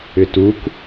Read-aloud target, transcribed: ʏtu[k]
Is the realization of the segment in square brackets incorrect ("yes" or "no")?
no